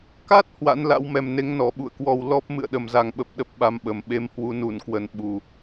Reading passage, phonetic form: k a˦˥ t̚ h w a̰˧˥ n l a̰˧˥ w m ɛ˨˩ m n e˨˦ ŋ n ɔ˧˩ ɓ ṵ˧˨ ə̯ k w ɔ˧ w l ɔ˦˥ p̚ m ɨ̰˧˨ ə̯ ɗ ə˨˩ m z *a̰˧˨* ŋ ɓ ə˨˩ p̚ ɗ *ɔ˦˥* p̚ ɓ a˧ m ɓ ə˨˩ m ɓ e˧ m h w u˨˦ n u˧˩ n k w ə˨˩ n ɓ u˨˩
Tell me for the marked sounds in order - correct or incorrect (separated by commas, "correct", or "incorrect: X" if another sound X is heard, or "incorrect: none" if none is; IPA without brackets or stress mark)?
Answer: incorrect: a˨˩, incorrect: ə˦˥